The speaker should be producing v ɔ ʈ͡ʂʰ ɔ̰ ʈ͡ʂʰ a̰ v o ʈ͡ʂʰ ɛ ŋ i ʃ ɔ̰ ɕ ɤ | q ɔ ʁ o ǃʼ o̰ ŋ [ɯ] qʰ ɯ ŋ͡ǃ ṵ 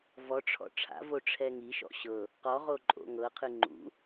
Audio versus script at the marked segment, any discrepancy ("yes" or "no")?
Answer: yes